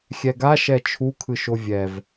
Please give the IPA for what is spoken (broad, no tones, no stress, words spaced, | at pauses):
xʲɛɡa ʃɛt͡ʃʰu kʰɯʃovʲɛv